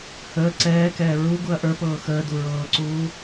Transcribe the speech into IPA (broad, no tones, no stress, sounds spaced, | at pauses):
h əː ǀ ɛː k ɛː ɹ u ɡ u ɐ̯ ʔ ə˞ p ɤː x əː d u ɹ ɤː ǀ uː